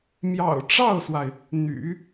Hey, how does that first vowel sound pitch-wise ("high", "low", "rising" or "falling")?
low